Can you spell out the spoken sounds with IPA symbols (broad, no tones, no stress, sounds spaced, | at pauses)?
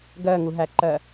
ɡ ɜ ŋ u ɦ æ ǃ ɜ